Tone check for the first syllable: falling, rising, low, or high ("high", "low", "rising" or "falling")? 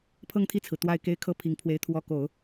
falling